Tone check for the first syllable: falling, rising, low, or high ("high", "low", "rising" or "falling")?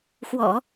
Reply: low